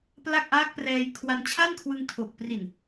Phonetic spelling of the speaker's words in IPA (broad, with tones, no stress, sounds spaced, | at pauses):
p l a˥˩ k̚ ʔ aː˦˥ k̚ p r ɛː˧ j kʰ w a˧ n t͡ɕʰ a˥˩ n kʰ w ɯ˧ ŋ tʰ o˨˩ k̚ p r i˨˩ n